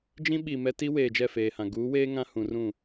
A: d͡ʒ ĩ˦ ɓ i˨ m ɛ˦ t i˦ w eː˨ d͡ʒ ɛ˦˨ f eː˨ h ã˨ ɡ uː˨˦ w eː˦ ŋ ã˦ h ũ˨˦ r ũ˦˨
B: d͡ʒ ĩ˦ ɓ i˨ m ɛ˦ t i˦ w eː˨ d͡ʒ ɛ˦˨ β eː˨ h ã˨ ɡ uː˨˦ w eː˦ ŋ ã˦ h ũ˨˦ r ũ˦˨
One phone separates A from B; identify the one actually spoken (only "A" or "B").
A